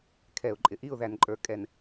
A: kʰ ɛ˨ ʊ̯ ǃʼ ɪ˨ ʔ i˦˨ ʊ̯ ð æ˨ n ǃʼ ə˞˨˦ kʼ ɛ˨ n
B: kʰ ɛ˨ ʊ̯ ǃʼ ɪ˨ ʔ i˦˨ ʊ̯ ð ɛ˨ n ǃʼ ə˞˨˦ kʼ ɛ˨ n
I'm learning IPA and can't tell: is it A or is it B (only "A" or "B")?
A